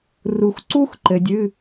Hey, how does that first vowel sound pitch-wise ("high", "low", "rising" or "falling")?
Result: low